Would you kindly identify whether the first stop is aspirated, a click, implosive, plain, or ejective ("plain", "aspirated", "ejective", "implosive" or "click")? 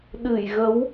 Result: implosive